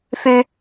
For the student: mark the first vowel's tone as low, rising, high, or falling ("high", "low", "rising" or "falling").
low